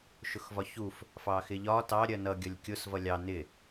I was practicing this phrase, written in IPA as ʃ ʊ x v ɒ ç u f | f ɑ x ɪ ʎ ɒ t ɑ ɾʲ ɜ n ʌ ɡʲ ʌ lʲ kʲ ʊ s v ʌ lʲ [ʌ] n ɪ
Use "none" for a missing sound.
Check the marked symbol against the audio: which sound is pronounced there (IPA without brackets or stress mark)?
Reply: ɑ